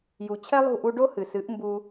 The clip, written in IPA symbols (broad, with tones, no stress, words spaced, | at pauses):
ju˨ t͡ɕʰɛ˦lˠṳ˦˨ʔu˧ ɖo˦hɨ˨sɨ˨˦ʔ mbu˧